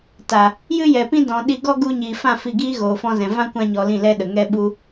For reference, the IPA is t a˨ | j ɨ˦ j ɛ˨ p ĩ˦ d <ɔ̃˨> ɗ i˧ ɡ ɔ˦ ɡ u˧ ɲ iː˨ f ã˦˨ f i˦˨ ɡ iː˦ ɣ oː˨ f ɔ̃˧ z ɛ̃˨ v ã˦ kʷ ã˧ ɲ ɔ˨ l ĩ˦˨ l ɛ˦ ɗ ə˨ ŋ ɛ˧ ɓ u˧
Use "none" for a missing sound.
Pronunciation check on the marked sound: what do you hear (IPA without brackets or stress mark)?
ɔ̃˨